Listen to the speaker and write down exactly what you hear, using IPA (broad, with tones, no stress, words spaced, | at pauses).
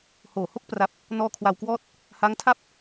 hoː˨˩ho˥˩k̚pra˦˥p̚ | nɔː˧kʰwa˧wkwɔː˥˩t̚ | ha˦˥ŋtʰa˥˩p̚